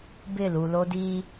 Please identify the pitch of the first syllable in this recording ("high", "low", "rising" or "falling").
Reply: falling